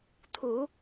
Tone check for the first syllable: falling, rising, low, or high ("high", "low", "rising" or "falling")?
low